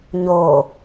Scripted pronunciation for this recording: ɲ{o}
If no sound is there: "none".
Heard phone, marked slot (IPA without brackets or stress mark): o